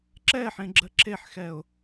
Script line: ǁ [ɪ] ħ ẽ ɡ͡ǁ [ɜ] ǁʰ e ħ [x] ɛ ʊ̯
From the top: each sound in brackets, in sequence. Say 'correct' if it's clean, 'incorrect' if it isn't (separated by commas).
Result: incorrect, correct, correct